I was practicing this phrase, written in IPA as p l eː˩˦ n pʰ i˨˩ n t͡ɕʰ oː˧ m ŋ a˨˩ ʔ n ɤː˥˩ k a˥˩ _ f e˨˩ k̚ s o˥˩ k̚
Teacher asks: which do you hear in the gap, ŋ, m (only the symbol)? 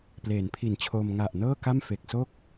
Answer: m